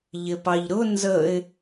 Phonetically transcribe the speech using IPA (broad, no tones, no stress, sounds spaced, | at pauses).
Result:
ʎ ɪ p ɑ ʎ ɾ ʊ n z ə ɪ̯